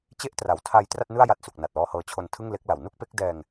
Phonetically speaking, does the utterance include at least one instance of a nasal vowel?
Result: no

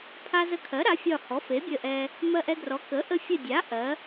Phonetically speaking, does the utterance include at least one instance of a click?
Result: no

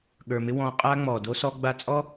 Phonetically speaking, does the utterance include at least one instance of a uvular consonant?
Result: yes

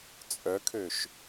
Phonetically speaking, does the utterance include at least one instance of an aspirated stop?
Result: yes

